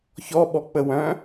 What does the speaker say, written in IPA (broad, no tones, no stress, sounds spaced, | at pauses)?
ç ɔ ɓ ɔ k͡p ə w œ̃